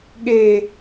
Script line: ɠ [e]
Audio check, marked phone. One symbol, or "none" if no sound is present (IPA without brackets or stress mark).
e